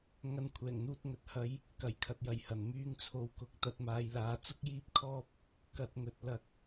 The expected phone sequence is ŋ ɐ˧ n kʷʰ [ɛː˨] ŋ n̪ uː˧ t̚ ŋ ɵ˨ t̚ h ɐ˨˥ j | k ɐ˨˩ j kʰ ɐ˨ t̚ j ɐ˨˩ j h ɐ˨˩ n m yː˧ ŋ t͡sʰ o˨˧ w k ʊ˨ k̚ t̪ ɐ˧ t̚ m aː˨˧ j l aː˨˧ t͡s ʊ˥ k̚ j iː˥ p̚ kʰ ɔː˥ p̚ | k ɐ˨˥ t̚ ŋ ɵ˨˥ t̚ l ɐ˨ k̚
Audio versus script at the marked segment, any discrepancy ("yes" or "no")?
yes